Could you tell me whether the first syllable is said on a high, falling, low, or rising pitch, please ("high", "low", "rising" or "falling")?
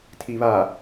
low